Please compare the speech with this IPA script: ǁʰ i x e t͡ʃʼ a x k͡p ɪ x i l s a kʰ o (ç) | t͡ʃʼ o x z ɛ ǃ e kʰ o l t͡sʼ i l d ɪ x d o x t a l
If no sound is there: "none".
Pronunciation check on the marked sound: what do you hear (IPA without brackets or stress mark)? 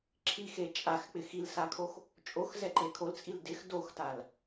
x